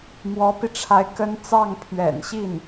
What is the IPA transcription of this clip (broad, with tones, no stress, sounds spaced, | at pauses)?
m w ɔ˧˥ p i˧ ʈ͡ʂʰ a˧˥ ɪ̯ k ə˥ n t͡s ɑ˥˩ ŋ pʰ ɥ ɛ̰˨˩ n ɕ i˥˩ n